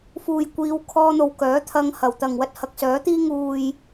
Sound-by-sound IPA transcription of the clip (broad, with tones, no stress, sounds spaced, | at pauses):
f uː˨ j kʷ iː˨˧ w kʰ ɔː˧ n̪ o˨ w k œː˨˥ t̪ʰ ɐ˧ ŋ h ɐ˨˩ w t̪ ɐ˨ ŋ w ɐ˧ t̚ h ɐ˨ k̚ s œː˨˥ t̪ iː˥ ŋ uː˨ j